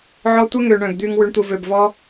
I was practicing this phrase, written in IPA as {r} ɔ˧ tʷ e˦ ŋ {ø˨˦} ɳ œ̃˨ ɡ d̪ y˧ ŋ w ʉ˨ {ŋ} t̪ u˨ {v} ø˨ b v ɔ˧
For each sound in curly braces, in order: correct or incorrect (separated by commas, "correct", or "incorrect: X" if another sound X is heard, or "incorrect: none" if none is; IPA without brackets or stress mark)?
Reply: incorrect: ʕ, incorrect: ø˨, incorrect: ɳ, correct